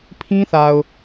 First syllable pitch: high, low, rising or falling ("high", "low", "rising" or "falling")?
high